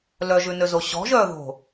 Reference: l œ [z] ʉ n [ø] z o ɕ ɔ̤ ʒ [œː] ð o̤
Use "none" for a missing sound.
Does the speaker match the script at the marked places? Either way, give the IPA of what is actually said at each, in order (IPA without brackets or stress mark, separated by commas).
ʒ, ø, œː